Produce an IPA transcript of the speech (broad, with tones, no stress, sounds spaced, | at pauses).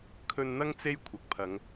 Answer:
kʰ ɵ˧ n n̪ ɐ˥ ŋ t͡s e˥ j kʷʰ ɐ˨ k̚ pʰ ɐ˨˧ ŋ